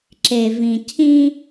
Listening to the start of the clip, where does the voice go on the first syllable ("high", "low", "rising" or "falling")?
low